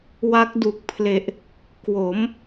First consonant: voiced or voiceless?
voiced